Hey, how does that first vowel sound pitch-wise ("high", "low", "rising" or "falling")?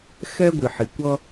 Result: high